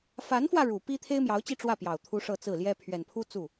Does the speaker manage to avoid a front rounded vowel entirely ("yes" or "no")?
yes